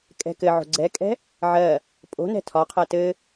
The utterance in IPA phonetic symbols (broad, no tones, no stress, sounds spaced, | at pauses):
kʼ ɛ̤ k ɘ ʕ o̤ ɡ͡ǀ ɛ kʼ ɛ̤ | ʕ ɜ | pʼ o̤ n ɛ̤ tʰ ɒ qʰ ɜ t ɘ